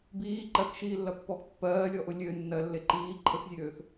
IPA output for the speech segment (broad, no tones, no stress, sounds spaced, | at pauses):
b iː ǃ ɜ k ʃ iː lː ɐ pː ɔ x pː ɜː lʲ ɔ ʔ ʊ lʲ ø nː ɜ lː e ǃ iː ǃʰ ə x zʲ øː x